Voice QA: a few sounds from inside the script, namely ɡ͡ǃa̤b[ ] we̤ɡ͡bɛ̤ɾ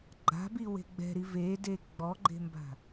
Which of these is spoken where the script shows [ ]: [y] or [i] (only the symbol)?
i